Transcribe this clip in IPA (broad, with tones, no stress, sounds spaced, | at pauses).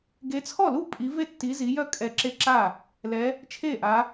ɡ e˨˦ t͡sʰ ɔ˥˩ l u˥˩ pʼ i˨˦ v e˥˩ tː i˨˦ z i˨˦ j œ˥˩ kʼ ɛ˥˩ ǁ e˥˩ ǁ a˥˩ | l ɛ˨˦ | t͡ʃʰ e˥˩ ʔ a˨˦